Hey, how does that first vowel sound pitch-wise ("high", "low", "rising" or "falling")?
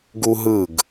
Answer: high